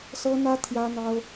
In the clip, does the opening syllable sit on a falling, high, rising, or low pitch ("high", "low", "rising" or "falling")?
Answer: high